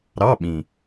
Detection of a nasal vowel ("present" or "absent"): present